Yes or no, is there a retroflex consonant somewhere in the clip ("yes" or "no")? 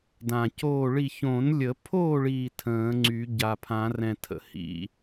yes